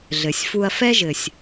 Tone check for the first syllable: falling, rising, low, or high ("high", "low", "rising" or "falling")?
low